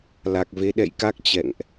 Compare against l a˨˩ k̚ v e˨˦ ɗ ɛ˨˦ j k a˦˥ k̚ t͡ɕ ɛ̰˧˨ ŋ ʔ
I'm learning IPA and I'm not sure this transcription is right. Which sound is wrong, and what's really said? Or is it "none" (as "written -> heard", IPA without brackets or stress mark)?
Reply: ɛ˨˦ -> ɛ̰˧˨